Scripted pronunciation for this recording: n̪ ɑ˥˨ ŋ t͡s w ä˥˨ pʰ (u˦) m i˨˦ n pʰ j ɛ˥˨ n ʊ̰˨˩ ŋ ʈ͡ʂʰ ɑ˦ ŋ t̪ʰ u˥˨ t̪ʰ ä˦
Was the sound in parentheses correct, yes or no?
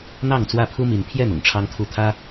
yes